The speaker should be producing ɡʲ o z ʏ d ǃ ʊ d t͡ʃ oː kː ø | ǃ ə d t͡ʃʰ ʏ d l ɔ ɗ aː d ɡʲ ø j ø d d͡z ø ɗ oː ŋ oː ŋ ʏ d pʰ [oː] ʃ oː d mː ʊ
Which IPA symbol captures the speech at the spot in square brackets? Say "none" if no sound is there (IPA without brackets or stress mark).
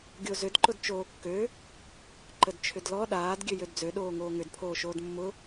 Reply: oː